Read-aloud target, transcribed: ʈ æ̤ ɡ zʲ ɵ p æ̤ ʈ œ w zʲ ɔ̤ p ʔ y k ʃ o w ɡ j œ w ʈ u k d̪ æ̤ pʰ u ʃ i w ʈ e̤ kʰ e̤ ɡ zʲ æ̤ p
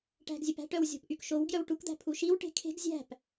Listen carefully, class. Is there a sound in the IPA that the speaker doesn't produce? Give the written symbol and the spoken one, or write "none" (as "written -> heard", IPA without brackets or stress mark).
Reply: none